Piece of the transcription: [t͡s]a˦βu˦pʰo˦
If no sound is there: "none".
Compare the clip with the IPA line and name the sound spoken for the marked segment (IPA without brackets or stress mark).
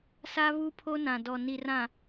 s